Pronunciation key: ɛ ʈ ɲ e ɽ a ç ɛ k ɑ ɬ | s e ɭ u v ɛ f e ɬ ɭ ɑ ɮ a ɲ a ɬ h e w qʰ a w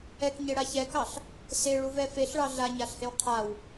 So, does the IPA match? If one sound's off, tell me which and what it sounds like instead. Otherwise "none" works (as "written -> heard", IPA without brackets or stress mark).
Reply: ʈ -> k